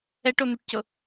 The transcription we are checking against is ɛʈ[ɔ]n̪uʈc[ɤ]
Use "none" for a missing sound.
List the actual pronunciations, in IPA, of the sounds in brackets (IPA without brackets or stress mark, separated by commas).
o, ɤ